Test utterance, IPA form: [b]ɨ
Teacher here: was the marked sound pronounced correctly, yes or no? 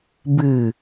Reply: yes